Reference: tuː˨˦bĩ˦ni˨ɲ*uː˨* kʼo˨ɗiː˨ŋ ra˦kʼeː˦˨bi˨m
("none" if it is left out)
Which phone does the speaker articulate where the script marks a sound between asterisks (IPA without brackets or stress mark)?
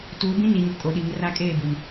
u˨